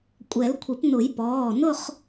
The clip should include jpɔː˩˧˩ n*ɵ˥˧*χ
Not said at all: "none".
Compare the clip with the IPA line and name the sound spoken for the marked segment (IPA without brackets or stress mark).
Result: ʊ˥˧